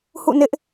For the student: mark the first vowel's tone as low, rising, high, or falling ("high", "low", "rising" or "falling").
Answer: falling